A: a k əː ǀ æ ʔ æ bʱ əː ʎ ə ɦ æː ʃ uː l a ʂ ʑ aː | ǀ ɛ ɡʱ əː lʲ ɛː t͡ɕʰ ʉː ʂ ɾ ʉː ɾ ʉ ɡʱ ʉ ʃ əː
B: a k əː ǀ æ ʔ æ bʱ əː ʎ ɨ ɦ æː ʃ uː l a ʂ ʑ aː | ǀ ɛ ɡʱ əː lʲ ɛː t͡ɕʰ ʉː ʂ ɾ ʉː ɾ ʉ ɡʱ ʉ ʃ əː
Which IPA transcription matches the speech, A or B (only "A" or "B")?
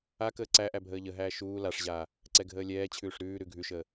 A